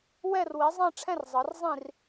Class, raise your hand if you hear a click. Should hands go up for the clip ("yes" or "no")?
no